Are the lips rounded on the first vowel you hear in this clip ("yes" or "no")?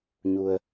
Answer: yes